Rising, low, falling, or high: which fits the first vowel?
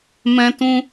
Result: high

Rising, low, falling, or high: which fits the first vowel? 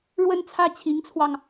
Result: falling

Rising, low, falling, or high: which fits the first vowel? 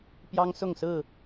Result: high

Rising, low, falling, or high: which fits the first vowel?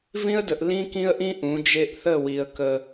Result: high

